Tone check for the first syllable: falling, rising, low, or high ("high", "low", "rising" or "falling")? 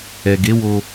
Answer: low